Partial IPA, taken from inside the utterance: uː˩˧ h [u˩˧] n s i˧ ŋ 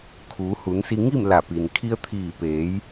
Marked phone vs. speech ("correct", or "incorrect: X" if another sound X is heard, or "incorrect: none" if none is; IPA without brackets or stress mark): correct